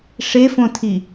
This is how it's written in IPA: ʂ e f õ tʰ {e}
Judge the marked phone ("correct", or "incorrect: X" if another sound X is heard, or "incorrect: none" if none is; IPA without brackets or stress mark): incorrect: i